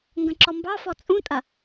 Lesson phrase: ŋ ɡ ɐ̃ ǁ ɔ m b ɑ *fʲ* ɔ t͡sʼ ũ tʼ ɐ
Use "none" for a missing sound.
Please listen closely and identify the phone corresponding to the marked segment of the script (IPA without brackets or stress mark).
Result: f